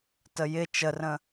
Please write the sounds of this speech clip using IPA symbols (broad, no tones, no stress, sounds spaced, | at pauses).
t ə j ɪ t͡ʃ ə r ə̃